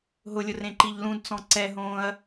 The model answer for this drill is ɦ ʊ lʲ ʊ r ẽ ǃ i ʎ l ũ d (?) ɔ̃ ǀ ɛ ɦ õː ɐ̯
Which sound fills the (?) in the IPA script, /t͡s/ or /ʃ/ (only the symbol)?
t͡s